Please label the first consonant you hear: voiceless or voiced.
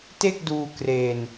voiceless